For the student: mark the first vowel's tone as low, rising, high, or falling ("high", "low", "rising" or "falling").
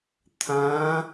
rising